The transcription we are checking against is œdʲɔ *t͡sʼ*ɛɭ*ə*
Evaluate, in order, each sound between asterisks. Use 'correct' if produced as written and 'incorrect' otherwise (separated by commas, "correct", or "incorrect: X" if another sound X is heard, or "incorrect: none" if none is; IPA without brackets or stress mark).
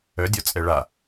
correct, incorrect: a